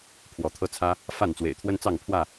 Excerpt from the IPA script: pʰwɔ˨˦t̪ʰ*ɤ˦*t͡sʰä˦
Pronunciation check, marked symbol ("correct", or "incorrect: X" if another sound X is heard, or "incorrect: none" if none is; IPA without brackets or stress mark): correct